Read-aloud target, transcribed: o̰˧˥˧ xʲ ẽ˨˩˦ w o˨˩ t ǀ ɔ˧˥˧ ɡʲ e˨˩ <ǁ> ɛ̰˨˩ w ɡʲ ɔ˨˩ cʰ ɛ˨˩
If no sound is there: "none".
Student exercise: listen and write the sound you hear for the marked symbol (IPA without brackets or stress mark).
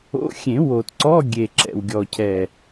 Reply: ǁ